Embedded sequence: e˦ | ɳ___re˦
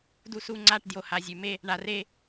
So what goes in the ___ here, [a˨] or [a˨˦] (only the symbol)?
a˨